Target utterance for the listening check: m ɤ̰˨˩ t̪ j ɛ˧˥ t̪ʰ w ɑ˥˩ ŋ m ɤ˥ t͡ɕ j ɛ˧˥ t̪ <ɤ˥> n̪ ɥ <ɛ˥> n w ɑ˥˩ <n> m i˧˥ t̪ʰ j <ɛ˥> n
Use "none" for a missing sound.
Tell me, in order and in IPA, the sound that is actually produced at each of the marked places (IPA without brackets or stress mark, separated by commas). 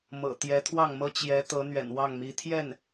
ɤ˧˥, ɛ̰˨˩, ŋ, ɛ˥˩